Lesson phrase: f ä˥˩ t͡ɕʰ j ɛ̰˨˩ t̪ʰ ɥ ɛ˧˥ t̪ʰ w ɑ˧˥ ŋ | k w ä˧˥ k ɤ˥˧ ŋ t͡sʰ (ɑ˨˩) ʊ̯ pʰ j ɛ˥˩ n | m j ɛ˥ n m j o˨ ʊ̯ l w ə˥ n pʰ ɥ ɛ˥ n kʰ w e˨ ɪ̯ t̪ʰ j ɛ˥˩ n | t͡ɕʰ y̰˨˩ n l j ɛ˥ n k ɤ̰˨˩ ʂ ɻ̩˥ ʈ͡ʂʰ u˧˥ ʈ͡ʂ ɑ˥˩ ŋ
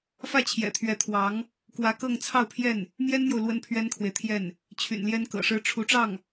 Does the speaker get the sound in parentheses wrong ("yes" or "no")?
yes